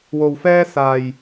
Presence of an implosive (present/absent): absent